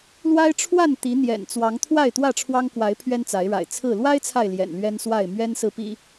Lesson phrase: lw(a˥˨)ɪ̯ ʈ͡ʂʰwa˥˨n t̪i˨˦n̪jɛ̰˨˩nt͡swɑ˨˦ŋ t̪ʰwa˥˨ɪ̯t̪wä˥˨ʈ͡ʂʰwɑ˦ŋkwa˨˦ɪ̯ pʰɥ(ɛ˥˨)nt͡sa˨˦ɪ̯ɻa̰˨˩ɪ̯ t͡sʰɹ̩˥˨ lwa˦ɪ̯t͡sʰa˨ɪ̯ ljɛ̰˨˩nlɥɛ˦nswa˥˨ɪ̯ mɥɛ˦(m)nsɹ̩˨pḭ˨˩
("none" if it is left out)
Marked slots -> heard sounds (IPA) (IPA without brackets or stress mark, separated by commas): a˦, ɛ˦, none